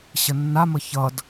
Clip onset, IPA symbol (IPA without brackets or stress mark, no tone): ɕ